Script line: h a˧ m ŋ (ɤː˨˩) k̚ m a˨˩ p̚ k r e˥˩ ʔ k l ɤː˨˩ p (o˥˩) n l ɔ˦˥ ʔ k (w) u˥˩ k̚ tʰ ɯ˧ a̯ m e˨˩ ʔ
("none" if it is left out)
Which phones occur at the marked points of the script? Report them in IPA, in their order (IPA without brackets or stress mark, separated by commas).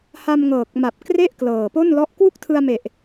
ɤː˨˩, o˥˩, w